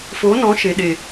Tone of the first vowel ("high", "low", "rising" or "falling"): rising